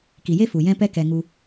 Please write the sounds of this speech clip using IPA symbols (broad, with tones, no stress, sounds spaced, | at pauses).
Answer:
k i˨ j e˦ f u˨ j ɛ̃˦ p ɛ˦ k ɛ˧ ŋ u˧